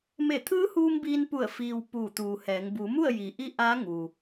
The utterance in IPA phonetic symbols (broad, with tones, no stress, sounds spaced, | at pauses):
m e˧˩ t̪ʰ ɯː˧˥ h uː˧ m b iː˧ n p u˧˩ ə̯ f iː˧ w p uː˧˩ t̪ uː˩ h ɛː˩˧ ŋ b u˩˧ m u˥˨ ə̯ j i˩˧ ʔ i˧˥ ʔ aː˧˥ ŋ u˩